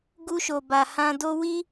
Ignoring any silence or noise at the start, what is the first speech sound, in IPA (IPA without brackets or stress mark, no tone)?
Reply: ɡ